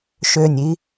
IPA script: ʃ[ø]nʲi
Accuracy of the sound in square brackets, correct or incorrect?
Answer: correct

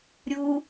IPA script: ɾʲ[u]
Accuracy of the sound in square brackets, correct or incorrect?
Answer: correct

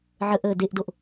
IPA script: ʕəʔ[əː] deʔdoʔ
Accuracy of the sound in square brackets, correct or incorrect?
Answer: correct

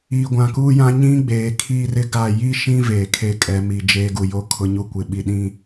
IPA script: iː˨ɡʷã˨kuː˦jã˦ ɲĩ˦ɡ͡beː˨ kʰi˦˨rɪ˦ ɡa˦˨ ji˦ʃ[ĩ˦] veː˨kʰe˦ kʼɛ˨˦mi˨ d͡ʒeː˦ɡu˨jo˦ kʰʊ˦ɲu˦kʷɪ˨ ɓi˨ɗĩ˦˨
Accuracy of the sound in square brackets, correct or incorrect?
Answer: correct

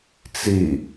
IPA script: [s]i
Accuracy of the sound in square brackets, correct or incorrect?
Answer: incorrect: t͡s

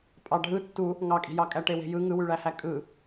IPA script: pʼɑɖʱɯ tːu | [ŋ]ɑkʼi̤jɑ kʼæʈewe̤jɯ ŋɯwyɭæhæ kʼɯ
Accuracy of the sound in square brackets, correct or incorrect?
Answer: correct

